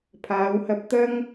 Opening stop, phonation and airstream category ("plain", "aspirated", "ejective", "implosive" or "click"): aspirated